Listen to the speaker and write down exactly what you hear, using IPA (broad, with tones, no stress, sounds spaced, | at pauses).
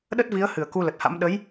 ɗ ə˦˥ t̚ v i˨˦ ə̯ h ɨ˧˩ ə̯ k u˧ l ə˨˩ t̚ h a̰˧˥ m ɗ ə˨˦ j